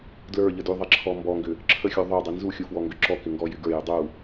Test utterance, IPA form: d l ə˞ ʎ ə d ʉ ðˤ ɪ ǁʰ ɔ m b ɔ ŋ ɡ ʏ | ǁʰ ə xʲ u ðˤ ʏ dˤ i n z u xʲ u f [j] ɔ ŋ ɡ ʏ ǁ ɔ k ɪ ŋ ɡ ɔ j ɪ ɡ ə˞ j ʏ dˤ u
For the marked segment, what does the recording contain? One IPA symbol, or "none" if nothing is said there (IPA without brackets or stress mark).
w